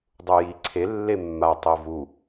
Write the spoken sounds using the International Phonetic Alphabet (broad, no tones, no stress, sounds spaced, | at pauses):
dˤ u j i ǀʰ e lː e mː a tˤ e v u